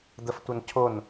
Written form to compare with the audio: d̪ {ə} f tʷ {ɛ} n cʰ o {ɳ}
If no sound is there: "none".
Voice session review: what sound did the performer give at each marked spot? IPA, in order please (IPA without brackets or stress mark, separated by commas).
ə, ə, n